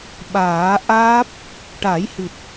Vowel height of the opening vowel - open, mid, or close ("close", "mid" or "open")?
open